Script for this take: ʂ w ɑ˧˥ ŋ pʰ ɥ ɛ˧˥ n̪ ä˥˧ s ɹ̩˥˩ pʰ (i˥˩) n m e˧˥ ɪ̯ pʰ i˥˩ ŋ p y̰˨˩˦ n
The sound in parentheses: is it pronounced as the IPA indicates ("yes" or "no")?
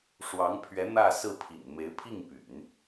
no